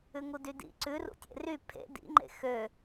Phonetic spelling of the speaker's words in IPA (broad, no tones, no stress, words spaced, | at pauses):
ʉŋudydḭ ǀʉrṵ tʲḛry pʰḛ dḭŋ͡ǃḛ xø